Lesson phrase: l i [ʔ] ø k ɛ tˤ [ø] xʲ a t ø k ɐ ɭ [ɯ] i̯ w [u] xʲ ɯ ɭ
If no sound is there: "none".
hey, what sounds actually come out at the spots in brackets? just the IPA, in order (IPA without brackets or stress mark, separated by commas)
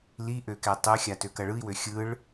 ʔ, ø, ɯ, ø